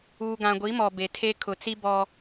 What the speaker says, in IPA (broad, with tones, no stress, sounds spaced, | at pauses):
uː˨ ɡ ã˨ ɡʷ i˨˦ m ɔ˨ b e˨ tʰ e˦ kʰ ʊ˨ t͡s i˦ b ɔ˦